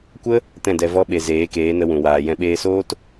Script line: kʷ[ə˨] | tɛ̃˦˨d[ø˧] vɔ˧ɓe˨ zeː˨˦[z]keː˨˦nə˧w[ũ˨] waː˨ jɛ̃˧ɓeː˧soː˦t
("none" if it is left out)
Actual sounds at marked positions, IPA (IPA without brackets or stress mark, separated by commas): ə˦, ɛ˧, none, ũ˨